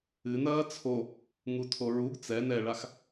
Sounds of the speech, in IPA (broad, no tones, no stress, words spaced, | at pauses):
ɨnɐː t͡sʰo | ŋutʰoɹuɡ t͡sɛ nɛɭax